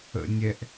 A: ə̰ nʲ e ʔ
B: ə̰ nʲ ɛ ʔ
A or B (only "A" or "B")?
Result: B